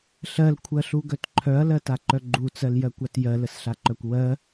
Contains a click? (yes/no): yes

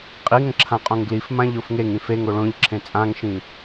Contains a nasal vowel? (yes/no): yes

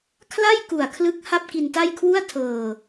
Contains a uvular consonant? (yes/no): no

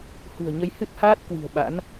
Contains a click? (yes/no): no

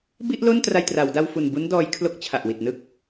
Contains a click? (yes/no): no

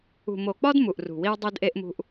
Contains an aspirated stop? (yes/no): no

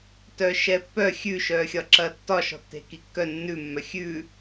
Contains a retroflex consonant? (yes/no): no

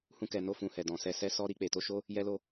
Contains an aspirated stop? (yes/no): no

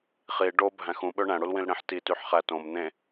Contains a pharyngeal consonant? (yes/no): yes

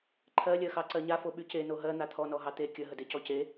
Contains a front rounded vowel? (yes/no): yes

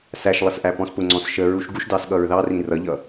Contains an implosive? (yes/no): yes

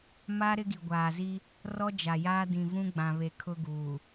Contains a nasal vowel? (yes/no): yes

